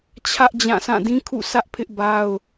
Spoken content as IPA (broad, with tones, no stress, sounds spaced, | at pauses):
t͡ɕʰ ä˦ ʔ d͡ʑ ã˦˨ s ã˦˨ d ĩ˦ kʰ ṵ˦˨ s ä˦ ʔ pʰ ɪ˦ ʔ b a˦ ʊ̯